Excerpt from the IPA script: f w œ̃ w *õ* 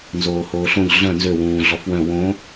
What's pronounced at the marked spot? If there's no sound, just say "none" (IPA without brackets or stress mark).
õ